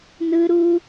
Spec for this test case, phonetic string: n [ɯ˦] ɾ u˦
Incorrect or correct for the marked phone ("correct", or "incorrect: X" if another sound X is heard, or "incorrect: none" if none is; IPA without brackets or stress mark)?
correct